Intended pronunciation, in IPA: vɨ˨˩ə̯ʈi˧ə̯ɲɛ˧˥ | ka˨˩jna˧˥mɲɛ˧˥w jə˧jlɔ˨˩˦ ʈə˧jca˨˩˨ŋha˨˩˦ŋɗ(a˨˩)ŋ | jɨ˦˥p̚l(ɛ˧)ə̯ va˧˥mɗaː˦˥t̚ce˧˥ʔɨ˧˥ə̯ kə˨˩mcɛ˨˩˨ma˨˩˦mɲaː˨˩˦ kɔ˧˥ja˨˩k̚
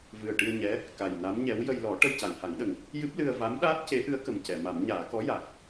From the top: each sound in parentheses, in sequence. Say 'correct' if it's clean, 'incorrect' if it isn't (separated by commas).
incorrect, incorrect